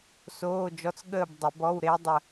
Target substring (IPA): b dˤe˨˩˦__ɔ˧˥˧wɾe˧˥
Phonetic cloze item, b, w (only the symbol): b